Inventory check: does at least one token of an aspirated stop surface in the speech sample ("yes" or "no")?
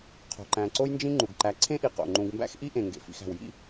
yes